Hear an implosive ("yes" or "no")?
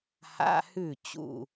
no